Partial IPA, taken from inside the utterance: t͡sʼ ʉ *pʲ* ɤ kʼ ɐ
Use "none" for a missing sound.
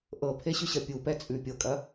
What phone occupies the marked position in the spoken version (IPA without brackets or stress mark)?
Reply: pʲ